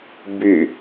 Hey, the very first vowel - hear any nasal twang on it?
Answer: no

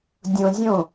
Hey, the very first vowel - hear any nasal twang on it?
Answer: yes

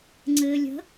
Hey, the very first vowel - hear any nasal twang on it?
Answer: no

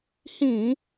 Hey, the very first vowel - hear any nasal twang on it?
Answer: yes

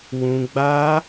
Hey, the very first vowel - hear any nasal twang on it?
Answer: yes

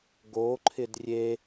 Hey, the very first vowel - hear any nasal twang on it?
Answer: no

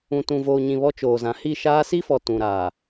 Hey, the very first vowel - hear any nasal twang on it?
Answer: yes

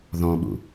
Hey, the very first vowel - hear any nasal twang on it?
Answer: yes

